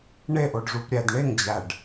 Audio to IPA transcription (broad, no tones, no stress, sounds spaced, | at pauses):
ɳ e ʔ o ɖ ʐ u p ɾʲ æ d ɳ e ŋ d͡ʑ æ ɖ